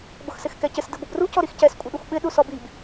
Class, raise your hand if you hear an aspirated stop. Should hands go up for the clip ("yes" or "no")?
no